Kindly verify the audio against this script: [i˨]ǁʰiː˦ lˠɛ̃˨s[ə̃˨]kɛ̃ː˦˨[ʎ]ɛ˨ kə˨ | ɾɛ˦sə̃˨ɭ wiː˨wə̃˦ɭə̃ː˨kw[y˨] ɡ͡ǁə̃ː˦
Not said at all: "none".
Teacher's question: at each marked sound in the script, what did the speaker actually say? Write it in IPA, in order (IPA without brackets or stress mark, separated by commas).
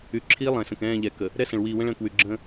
y˨, ə̃˨, ʎ, y˨